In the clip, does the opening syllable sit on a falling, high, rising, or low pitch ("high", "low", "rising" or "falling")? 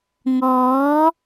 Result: rising